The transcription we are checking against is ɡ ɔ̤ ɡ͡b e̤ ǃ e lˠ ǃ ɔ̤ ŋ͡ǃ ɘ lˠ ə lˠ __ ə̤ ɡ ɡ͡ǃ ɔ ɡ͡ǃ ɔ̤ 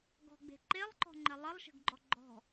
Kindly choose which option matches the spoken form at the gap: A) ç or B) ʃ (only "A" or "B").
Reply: B